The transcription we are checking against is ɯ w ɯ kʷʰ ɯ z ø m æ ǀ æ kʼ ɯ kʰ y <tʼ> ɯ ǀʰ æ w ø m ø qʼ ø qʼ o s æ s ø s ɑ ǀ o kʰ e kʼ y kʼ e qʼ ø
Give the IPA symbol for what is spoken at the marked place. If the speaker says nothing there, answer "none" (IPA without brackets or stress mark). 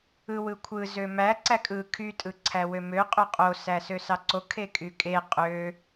tʼ